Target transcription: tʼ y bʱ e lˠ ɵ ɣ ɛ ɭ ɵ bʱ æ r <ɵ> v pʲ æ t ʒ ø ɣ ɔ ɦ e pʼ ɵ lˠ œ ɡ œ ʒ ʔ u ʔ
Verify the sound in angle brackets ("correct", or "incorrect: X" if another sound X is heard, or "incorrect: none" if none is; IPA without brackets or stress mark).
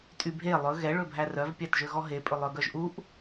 incorrect: œ